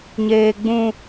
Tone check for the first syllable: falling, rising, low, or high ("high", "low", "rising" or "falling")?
high